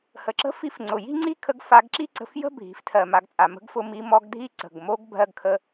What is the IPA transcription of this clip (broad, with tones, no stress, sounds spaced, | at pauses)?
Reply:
h ə˩ ǁ ə̤˥ f i˧˥ f ŋ͡ǀ ʊ˩ j i̤˥ ŋ͡ǀ i˥ kʰ ə˧˥ ɡ f a˧ ɡ ǁ i˥ ǀ ə̤˧ f j ə̤˥ bʱ i̤˩˧ f tʰ ɜ˩ m a˩˧ ɡ t͡sʼ a˩ m ə̤˧˥ ɡ f ʊ˧ m i˧˥ m ɔ˧˥ ɡ dʱ i˥ ǀ ə̤˩ ɡ m o˧˥ ɡ bʱ ɜ˧ ɡ kʰ ə˧